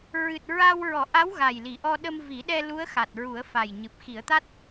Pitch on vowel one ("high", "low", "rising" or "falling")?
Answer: low